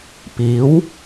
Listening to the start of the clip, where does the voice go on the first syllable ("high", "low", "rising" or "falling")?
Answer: rising